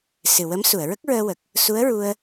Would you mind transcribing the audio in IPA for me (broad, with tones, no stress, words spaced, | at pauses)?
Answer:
sɨ˨˩wə˧˥msu˨˩˨ə̯ ɹə˦˥k̚ɹəː˧wə˨˩k̚ | su˧˥ə̯ɹu˧ə̯